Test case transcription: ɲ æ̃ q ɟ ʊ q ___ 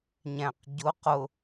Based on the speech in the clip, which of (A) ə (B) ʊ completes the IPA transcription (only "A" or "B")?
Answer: B